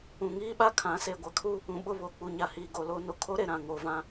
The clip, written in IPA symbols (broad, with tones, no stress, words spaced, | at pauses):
ũ˨ŋiː˦ɓa˦ kʰã˨˦ seː˨ɡʷa˨˦kʰu˦ | ũ˨ɓʊ˦˨ βoː˨k͡pu˨ɲa˨ hiː˨ ɡo˨lo˦ no˨kʰo˦ɾe˨ ɾã˨ŋoː˨vã˦